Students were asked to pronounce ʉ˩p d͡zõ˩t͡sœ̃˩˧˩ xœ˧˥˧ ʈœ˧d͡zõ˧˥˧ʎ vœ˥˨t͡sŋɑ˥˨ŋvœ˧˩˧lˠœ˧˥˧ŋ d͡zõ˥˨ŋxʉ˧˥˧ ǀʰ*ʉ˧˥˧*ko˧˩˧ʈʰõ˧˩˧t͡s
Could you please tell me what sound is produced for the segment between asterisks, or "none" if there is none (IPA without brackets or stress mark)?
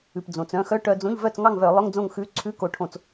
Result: ʉ˧˥˧